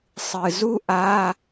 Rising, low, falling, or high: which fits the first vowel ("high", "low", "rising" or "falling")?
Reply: low